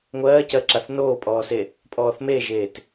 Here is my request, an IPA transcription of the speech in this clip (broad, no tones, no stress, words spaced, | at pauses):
ŋʷɜːcɜǁaθ noːpʼɔːse | pʼɔːθmeʒeːt